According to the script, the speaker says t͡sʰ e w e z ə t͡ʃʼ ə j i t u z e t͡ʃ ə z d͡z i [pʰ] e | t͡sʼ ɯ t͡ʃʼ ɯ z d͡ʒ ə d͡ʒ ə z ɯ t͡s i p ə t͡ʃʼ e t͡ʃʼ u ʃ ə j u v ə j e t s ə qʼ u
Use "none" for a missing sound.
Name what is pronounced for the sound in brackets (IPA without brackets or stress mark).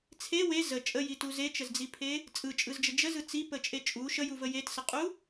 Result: pʰ